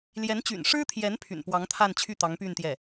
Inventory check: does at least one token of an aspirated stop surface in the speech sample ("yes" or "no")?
yes